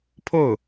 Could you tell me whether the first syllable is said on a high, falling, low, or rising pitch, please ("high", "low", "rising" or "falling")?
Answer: falling